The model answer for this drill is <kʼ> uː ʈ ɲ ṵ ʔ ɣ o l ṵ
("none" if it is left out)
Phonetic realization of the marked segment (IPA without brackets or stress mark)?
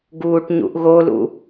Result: ɡ